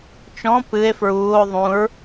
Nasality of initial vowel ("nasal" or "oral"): nasal